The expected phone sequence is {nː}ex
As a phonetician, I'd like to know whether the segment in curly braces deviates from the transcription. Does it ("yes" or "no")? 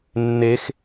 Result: no